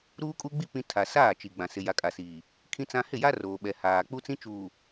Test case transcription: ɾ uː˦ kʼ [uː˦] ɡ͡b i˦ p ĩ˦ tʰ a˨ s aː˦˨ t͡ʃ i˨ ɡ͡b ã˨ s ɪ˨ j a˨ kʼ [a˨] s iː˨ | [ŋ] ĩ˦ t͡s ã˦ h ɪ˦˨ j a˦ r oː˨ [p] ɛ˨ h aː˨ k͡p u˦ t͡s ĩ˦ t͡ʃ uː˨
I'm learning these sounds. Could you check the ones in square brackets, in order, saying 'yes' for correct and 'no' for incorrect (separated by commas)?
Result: no, yes, no, no